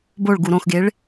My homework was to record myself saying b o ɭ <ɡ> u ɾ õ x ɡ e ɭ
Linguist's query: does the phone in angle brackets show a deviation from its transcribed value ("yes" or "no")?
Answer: no